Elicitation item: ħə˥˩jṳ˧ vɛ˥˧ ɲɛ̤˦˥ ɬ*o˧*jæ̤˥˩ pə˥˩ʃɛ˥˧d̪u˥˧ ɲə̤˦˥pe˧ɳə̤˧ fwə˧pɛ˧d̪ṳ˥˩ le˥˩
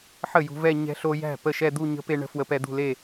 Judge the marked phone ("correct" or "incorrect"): correct